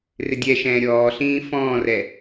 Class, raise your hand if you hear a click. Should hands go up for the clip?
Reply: no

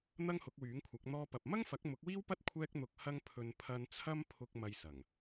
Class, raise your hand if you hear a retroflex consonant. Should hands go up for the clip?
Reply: no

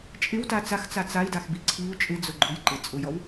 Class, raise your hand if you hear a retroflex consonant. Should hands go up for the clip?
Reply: no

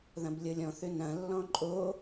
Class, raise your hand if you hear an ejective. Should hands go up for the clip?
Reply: yes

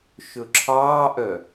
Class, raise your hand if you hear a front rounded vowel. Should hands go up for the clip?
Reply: yes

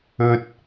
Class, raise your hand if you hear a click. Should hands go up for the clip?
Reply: no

